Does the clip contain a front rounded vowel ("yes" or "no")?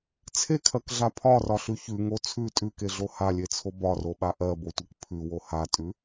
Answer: no